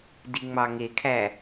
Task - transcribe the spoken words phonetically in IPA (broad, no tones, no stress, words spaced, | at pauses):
diŋ͡mɑŋekʰæ